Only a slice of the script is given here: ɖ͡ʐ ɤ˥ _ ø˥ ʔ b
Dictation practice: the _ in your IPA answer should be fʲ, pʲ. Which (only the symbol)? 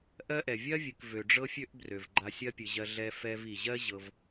fʲ